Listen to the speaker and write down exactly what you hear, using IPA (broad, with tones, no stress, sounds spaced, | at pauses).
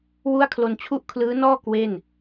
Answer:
w u˥˩ a̯ kʰ l o˧ n t͡ɕʰ u˥˩ ʔ kʰ l ɯː˦˥ n ɔː˥˩ k w e˥˩ n